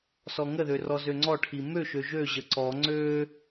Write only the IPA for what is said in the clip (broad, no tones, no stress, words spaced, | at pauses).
sɔŋəðø rɔzøŋ͡ǀɔʈʰi møʃø ʒøʑə ǀɔ ŋ͡ǀø